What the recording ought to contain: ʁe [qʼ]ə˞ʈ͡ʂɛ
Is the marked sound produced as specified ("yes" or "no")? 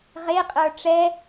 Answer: yes